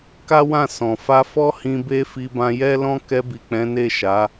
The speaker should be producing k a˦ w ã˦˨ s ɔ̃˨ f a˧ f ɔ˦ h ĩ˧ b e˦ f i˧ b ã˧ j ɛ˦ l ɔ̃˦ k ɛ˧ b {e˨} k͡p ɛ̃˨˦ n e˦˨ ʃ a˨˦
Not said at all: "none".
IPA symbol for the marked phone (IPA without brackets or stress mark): i˨